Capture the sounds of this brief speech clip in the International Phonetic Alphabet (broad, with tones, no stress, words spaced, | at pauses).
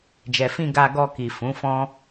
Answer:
d͡ʒɛ˨fĩ˧ ɡa˧ɡɔ˧ki˨ fũ˨˦fɔ̃˦